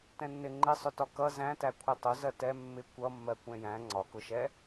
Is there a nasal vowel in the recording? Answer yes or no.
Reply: yes